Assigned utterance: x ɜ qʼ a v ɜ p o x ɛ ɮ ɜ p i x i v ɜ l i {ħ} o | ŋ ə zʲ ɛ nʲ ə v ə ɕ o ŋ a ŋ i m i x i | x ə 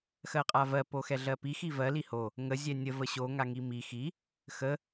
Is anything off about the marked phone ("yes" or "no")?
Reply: yes